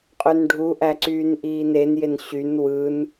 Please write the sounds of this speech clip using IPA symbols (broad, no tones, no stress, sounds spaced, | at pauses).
qʼ ø n ɖʱ u ʔ æ ǀ yː n ʔ iː n e n j e n ɕ y n w ɯ n